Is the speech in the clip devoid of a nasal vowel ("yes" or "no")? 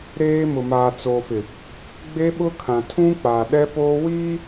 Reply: no